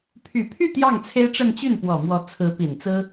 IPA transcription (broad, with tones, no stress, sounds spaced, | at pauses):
pʰ y˨˩ pʰ y˥˧ t̪ j ɑ˥˩ ŋ t͡sʰ e˥ ɪ̯ ʈ͡ʂ ə˥˧ n t͡ɕ y˥˩ n p w ɔ˨˩ m w ɔ˧˥ t͡sʰ ɹ̩˧˥ p i˨˩ n t͡s ɹ̩˥